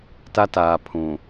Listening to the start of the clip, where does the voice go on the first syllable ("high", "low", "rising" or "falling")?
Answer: high